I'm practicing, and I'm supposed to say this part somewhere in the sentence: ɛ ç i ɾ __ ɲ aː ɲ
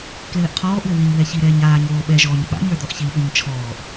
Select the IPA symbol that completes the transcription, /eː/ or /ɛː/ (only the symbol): ɛː